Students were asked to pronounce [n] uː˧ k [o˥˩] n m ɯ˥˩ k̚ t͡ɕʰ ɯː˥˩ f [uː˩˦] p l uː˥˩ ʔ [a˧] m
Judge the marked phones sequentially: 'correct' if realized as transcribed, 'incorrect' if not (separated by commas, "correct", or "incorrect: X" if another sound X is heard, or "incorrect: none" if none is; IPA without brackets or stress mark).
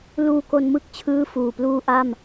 incorrect: l, incorrect: o˧, incorrect: uː˨˩, incorrect: a˥˩